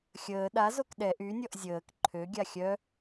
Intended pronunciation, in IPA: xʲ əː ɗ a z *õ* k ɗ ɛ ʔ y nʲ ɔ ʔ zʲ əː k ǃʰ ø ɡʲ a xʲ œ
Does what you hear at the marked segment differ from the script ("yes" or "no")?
yes